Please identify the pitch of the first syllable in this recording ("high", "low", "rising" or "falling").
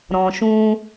low